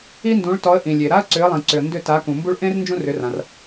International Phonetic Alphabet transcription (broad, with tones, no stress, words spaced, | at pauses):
i˥ndũ˩˥ɭtɔ˩˥ə̯ ʔĩ˩lʲe˩ ɾa˥ə̯ǀʏ˩˥ə̯lˠĩ˩ǀʏ˩ə̯ ndʏ˥˩ ta˩˥kũ˩mbu˥ɭ ʔẽ˥r nd͡ʒũ˥rʏ˩˥rã˩r